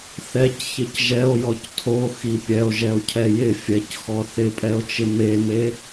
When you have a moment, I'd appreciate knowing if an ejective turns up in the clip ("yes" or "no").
yes